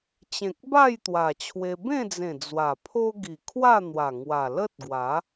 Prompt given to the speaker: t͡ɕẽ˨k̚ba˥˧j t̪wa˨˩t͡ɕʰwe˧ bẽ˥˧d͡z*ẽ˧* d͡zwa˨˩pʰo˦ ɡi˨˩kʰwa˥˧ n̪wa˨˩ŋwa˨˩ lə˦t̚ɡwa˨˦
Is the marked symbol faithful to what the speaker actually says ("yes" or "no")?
no